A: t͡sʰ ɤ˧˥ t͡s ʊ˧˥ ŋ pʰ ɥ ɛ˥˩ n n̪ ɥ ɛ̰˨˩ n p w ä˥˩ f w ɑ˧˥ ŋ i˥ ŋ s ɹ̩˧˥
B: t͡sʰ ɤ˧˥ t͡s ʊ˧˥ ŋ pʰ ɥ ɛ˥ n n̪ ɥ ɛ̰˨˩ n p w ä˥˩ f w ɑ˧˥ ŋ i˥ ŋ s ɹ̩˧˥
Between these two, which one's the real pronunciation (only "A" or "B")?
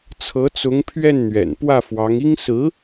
A